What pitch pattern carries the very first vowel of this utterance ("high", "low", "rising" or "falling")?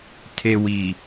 low